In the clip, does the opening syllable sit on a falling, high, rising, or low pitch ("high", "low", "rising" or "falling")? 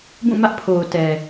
falling